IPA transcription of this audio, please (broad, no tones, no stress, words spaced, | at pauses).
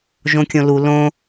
ʒõkʲõlu lõ